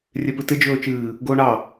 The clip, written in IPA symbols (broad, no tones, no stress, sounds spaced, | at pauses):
rʲ e p ɨ t ɪ d͡ʒ ɵː t͡ʃ ɨː | ɡ oː ɳ ɑ